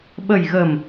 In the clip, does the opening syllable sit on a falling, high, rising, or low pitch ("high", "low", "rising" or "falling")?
low